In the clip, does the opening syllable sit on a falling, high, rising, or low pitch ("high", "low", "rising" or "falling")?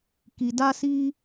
low